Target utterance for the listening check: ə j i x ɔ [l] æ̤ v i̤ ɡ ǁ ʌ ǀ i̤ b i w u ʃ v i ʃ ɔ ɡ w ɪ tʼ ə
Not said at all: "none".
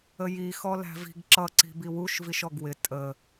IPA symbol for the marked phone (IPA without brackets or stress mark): l